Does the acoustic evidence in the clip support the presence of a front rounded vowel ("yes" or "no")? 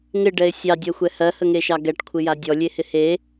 no